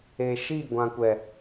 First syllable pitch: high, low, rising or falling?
low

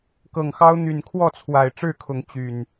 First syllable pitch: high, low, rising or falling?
low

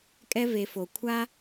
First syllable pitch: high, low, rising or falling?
high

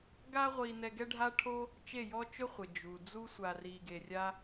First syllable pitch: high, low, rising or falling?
high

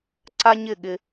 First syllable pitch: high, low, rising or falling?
high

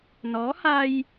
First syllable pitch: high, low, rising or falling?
rising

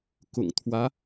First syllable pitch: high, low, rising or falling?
low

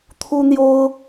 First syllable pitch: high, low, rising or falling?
high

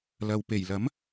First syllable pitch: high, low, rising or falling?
low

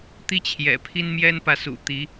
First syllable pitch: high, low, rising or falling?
high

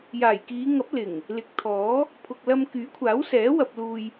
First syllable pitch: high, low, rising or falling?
low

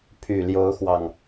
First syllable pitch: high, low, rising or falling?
low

